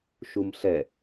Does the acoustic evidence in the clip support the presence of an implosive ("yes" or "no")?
no